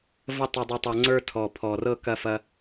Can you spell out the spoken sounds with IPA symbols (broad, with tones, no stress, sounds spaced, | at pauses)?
v ə˧ tˤ ɛ˧ dˤ e˧ tˤ ɤ˧ ŋ͡ǀ ə˞˧ tʰ ɔ˨˩ pʰ ɔ˨˩ r ɤ˧ k ɐ˧ f ɐ˧